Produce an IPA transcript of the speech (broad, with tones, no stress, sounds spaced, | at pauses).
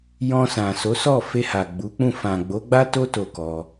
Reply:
j ɔ̃˧ s ã˨ s o˨˦ s ɔ˦˨ f e˧ h a˨ ɡ͡b u˨˦ k͡p ũ˦˨ f ã˨ ɡ͡b o˨˦ ɡ͡b a˦ t o˦ t o˦˨ k ɔ˧